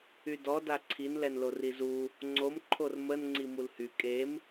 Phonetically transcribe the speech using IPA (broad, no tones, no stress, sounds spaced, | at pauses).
y d ɔ d a ǀʰ i n l ɛ n l o r i z u | ŋ͡ǀ o m ǃʰ o r m ə n ŋ͡ǀ i m u l h y kʼ e m